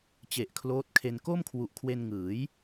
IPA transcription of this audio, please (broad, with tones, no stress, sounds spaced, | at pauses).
t͡ɕ e˨˩ ʔ kʰ l oː˦˥ t̚ kʰ e˧ n k o˥˩ m kʰ w u˨˩ ʔ kʰ w e˧ n ŋ ɯː˩˦ j